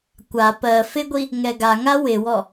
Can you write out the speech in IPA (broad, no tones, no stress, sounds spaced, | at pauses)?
kʷ a p ɜ f ɪ ɡʷ i | ŋ ɛ ɡ a ŋ a w ɪ w ɔ